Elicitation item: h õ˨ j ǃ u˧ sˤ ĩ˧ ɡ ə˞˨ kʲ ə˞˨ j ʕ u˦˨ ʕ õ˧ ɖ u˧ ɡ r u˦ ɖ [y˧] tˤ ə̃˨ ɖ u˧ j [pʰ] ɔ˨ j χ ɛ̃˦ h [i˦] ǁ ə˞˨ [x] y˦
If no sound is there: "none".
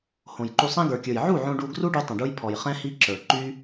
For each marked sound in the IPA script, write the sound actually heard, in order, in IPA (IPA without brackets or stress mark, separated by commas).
y˧, pʰ, i˦, ǃ